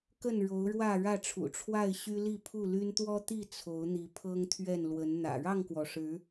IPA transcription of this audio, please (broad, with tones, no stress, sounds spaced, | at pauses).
k ə˥˨ n ɻ o˨˦ ʊ̯ ɻ w ä˥˨ ɻ ä˥˨ ʈ͡ʂʰ ṵ˨˩ ʈ͡ʂʰ w a˥˨ ɪ̯ ɕ y˦ l i˥˨ pʰ u˥˨ l y˦ n t̪ w ɔ˦ t̪ i˥˨ t͡sʰ o˨˦ ʊ̯ n̪ i˨˦ pʰ ɤ˦ ŋ t̪ʰ ɥ ɛ˥˨ n l w ə˨˦ n n̪ ä̰˨˩ ɻ ɑ˥˨ ŋ k w ɔ˩ ʂ ɻ̩˨˦